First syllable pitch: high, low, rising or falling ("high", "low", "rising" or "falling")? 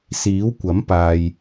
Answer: rising